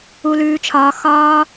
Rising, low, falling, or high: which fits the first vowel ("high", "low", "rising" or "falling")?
high